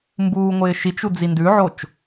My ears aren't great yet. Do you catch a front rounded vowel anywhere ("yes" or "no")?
no